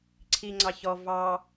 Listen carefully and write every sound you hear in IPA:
ǀʰ i ŋ͡ǀ ɑ ç ɔ v ɑ

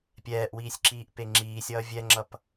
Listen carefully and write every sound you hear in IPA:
pʲ ɛː ʔ w iː sʲ ǁ iː ʔ p e ŋ͡ǁ iː sʲ ʌː vʲ ɛ ŋ͡ǁ ʌ p

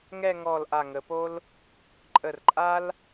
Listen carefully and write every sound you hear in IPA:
ŋ ɛ˥˧ ŋ ɔ˧˩ l ʔ a˧˩ ŋ ə˩˧ p o˥ l | ǃʼ ə˧˩ r ǃʼ a˥ l

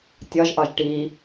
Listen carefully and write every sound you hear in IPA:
tʲ ɒ ʒ ʔ ɒ ʒ ʈ i

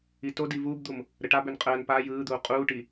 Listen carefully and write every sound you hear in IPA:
i t o d i v uː b d̪ u m | ɾ ə ʈ a b ø n qʼ əː n p a j ɯː d̪ uː qʼ uː ʈ i

